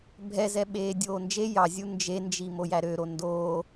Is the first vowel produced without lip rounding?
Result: yes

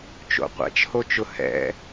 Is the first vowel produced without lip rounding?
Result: no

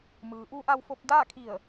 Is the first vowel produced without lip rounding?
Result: yes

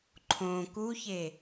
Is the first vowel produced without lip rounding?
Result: no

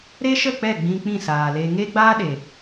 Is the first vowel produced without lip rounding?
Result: yes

